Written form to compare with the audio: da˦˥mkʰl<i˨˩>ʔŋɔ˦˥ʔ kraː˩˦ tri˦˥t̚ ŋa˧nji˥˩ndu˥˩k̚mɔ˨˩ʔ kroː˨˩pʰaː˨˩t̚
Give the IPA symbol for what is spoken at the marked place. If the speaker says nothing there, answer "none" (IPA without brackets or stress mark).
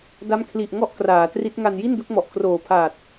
i˨˩